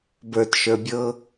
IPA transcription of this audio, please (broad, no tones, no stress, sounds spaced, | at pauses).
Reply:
b ə˞ t ʃ ə˞ bʲ ɤ